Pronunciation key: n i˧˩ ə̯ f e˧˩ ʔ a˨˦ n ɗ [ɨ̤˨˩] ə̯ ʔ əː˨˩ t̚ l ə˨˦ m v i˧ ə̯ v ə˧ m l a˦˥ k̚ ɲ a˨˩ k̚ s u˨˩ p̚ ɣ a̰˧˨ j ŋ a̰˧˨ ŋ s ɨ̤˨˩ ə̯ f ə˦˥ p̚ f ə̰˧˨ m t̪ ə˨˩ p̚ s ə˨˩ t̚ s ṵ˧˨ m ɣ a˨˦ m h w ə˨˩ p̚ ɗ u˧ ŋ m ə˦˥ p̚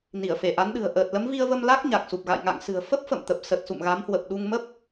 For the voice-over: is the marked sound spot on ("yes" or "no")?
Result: yes